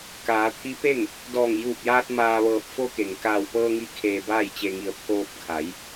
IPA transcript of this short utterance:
kaː˩˧t̪ʰi˧˥pe˥˨ŋ | dɔː˧˩ŋjuː˧˩p̚jaː˧t̚ maː˧ʋɤː˧˩p̚ fo˧ke˩ŋ kaː˧˩wpɤː˧ŋi˧ kʰeː˧baː˥˨jt͡ɕe˧ŋi˧ə̯ pʰoː˧p̚kʰa˩˧j

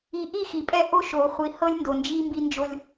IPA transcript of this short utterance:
i˨ʔi˦˨ xi˨pʼɛ˦ ʔo˦ʃo˨χʷi˨ hɤ˦lʲndo˨nd͡ʒi˦ mbi˦nd͡ʒo˦lʲ

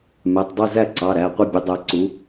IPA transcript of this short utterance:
mɛ˩˧˩tˤdˤɪ˥˨zæ˥˨ǀɑ˩˧˩ ɾæ˩˧˩qʷɪ˥˨bʲʊ˩˥ dˤæ˩˥ǀu˩˥

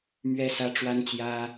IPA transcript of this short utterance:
mɥɛ˥sä˥ ʈ͡ʂwa˥nt͡ɕjä˥

